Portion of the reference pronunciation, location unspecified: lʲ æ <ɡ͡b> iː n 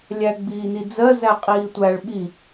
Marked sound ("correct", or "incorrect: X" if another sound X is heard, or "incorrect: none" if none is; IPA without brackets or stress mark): correct